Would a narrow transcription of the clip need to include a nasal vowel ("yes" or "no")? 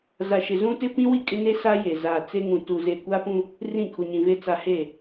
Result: yes